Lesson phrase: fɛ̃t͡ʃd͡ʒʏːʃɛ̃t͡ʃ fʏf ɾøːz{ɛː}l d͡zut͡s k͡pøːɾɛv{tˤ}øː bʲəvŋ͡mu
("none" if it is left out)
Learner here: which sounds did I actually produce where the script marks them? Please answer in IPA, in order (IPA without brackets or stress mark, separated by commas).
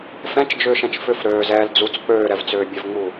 ɛː, t͡s